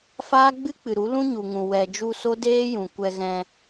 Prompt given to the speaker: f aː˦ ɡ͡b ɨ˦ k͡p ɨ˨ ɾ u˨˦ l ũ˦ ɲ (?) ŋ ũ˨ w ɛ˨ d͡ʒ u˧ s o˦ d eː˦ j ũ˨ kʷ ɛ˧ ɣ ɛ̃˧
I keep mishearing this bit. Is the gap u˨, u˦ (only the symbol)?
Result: u˨